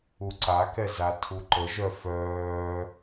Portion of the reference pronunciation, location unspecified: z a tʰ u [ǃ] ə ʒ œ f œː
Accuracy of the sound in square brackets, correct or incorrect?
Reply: correct